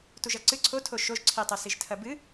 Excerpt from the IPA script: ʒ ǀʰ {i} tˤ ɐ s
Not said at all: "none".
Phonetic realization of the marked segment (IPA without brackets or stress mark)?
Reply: i